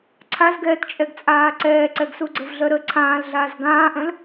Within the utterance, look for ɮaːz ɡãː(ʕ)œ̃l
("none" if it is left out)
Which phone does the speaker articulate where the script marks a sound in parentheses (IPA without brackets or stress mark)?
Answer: ʔ